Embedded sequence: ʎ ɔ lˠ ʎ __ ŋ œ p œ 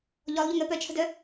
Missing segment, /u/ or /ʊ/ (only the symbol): ʊ